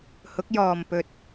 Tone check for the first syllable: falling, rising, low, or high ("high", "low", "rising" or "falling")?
rising